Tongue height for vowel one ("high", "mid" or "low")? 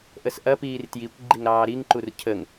mid